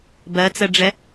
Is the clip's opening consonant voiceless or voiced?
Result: voiced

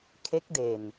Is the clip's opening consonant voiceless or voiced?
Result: voiceless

